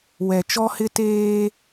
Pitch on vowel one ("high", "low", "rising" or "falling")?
low